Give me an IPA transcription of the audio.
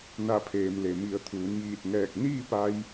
na˧˩pʰeː˩mle˩ mi˩˧ə̯t̪ʰuː˩˧njiː˧˩t̚ŋɛː˧˩k̚ niː˥˨pa˧j

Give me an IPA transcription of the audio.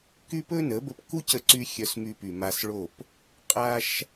ky˦pɵ˦nə˨˦ bə˧pku˦cə˧ǀy˧ xʲœ˧smy˧py˨ ma˧sɭo˦˨p | qʼa˦ʃ

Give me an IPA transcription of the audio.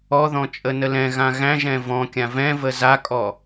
ɔðɔ̃ t͡ʃʼənəlɛ̃ɣã ɣæ̃ʒɛ̃ vɔ̃kʲã vɛ̃və zakʼɔ

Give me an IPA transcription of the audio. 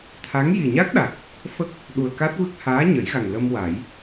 t̪ʰa˧˥ŋ ji˨˩ɲa˦˥k̚ɗa˨˩k̚ | fə˦˥k̚ | ɗu˨˩ə̯ka˦˥t̚vɨ˦˥k̚ haː˧˥ɲə˨˩˦jɣa˨˩ŋ lə˧mwa˨˩˦j

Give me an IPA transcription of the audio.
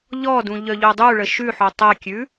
ʎɔdũ ʎœʎodˤuɭə ʃʉħo tˤɛkʲʉ

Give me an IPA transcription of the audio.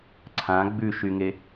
ǀʰã ɡ͡bʉʃyŋe

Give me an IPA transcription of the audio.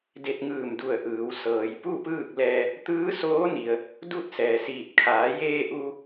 de˧t̚ŋɯː˧˩mdu˧˩ə̯ʔɯː˩˧w sɤː˩jpu˥˨pɯː˥˨k̚lɛː˧ | t̪ɯː˧˥soː˧˥ni˩ə̯ | du˥˨t̚sɛː˩siː˧˩t̚ kʰaː˩˧jeː˧ ʔu˧

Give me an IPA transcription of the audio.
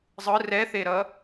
zˤɯ rɛθeɾʌ

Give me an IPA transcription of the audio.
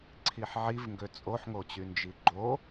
ǀʰiħʕivŋɡø t͡sʼoħŋot͡ɕy nd͡ʒiɡ͡ǃo

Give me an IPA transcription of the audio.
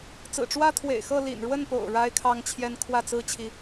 t͡sɹ̩˨˩ʈ͡ʂwä˥t̪ʰwḛ˨˩ɪ̯xɤ˥˩ lḭ˨˩nɻwə˥˩npo̰˨˩ʊ̯ ɻa˥ɪ̯kʰɑ˥ŋt͡ɕʰjɛ˥n kʰwä˥˩t͡sɹ̩˥ t͡ɕʰi˥

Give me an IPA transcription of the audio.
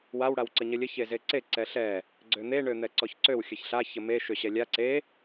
waw ɽawǀəɲəlʲə çezeǀe ǀɛɬɛ | ɡ͡ǀøn̪e ɳøn̪ɛǀɔçǀøw xʲəçɬa çəme ʃøɕɛlʲa ǀe

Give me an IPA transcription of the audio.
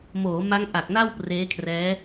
moː˩˦ ma˦˥ŋʔa˨˩k̚na˥˩w preː˦˥kʰrɛː˦˥

